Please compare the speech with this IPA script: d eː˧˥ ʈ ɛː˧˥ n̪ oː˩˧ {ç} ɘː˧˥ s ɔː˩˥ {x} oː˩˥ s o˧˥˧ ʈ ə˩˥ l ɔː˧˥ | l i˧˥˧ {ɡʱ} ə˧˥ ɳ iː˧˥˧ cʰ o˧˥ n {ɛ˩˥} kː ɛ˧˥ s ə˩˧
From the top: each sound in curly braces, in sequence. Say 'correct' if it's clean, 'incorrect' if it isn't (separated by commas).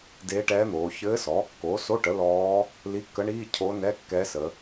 correct, incorrect, incorrect, incorrect